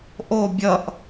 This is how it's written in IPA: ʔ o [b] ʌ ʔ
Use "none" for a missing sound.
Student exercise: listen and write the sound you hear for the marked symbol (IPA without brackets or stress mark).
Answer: bʲ